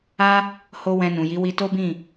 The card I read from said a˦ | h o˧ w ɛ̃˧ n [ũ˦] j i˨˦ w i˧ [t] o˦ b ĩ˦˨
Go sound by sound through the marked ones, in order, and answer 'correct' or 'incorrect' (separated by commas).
incorrect, correct